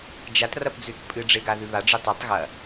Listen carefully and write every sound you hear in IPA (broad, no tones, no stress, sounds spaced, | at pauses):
d͡ʒ a t r ɐ p d͡z ʉ t pʼ ɨ ɖ͡ʐ e ɡ a ð ʉ β a ɖ͡ʐ ɨ tˤ a tˤ ɣ ɐ